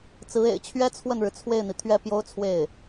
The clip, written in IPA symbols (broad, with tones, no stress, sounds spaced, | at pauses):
t͡s ɹ̩˧˥ ḛ˨˩ ɪ̯ t͡ɕʰ ɥ ɛ˥ t͡sʰ w ə˥˩ n ɻ ɻ̩˩ t͡sʰ w e˥˩ ɪ̯ n̪ i˩ t̪ʰ ɥ ɛ˥˩ p j o˥ ʊ̯ t͡sʰ w e˥˩ ɪ̯